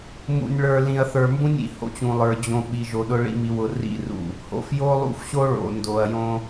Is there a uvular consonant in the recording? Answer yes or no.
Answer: no